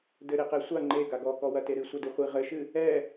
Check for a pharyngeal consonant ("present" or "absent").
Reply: absent